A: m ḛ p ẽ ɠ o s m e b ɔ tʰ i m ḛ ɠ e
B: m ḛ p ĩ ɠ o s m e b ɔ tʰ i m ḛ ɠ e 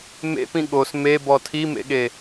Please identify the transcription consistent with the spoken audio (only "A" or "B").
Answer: B